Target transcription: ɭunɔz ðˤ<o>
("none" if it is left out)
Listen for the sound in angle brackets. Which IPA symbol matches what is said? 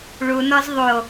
o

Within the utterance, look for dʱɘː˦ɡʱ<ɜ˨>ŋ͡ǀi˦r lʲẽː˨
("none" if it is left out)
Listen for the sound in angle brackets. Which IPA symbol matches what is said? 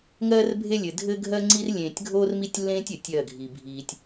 ɜ˦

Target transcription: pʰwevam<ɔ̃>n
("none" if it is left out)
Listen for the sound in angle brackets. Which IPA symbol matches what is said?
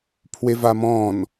ɔ̃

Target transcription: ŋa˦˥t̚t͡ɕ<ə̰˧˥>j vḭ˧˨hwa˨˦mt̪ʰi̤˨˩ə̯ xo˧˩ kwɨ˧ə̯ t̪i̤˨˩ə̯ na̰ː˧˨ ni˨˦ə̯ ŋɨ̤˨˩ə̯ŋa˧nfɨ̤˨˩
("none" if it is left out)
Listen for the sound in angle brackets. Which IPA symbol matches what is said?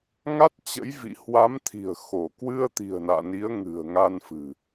ə̰˧˥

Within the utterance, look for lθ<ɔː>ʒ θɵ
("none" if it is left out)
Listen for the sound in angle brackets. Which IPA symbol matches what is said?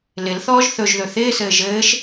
ɔː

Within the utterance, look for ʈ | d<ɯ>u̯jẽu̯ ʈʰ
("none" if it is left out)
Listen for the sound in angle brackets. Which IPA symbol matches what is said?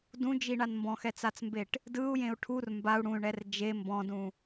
ɯ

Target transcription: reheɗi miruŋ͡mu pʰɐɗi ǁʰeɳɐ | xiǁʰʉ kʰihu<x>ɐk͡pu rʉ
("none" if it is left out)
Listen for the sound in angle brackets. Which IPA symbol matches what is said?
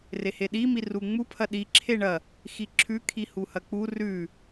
h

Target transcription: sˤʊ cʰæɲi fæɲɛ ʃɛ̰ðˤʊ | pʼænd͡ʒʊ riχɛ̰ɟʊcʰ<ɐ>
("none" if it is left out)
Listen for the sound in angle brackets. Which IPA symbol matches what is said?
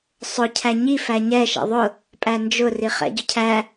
æ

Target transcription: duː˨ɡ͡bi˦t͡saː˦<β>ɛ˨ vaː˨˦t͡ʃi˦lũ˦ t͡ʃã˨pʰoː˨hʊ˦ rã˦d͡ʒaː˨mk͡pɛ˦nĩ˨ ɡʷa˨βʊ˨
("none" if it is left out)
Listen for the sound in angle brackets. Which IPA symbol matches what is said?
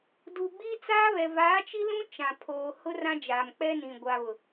β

